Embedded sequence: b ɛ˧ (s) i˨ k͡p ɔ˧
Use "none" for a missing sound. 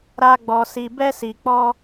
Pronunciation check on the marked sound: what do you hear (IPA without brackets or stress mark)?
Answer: s